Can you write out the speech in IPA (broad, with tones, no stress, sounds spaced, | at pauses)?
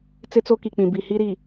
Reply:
t͡s ɪ˦ t͡s o˦ k i˨ k͡p ĩ˨ b i˨ h i˦ ɾ i˨